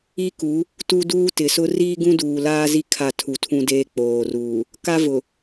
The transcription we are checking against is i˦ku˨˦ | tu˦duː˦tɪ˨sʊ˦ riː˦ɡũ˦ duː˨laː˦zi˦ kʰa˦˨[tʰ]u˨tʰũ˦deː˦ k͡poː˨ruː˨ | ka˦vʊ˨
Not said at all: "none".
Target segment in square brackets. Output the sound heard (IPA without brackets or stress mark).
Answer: tʰ